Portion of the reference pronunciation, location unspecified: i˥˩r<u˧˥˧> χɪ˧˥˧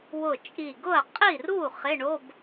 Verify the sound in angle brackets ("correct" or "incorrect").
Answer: incorrect